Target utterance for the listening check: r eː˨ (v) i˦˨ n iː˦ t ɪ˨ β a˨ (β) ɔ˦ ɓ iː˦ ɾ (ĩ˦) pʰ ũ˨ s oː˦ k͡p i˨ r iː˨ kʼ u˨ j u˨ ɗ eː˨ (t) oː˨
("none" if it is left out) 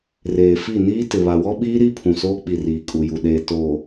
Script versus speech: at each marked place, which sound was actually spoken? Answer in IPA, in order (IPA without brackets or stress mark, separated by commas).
f, w, i˦, t